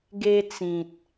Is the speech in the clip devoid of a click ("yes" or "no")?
yes